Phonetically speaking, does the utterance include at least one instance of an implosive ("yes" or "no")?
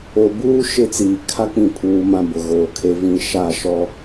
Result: no